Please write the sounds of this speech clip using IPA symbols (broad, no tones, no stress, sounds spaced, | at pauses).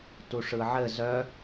t u ʂ ɯ ʕ ɘ z œ